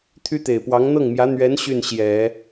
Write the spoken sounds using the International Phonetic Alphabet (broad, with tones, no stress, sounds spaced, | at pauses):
t̪ʰ y˥ t̪ e˨˩ ɪ̯ p w ɑ˧˥ ŋ n̪ ɤ˥˩ ŋ m j ä˧˥ n̪ ɥ ɛ˧˥ n ɕ y˥˩ n ɕ j ɛ˨˩˦